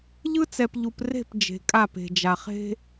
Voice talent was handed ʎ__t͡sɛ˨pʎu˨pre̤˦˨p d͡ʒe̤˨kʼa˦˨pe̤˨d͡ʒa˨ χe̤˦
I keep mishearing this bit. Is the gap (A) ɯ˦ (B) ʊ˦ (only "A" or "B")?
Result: A